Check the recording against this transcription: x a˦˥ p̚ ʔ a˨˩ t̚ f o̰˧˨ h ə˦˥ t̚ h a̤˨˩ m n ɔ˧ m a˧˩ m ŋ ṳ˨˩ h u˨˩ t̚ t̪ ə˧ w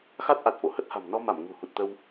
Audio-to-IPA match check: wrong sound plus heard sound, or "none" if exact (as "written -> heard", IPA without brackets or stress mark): p̚ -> t̚